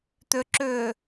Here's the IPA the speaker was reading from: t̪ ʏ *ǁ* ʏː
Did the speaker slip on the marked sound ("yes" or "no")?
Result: no